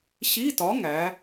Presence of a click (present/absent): absent